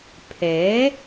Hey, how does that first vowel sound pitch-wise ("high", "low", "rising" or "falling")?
rising